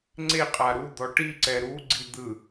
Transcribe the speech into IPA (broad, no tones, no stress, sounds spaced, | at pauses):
ŋ͡ǀ e qʼ a ɾ u d̪ ɔ ʈ i ǀ ɛ ɾ u ɡ͡ǀ i d̪ ɯ